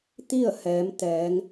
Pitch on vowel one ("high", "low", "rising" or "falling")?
falling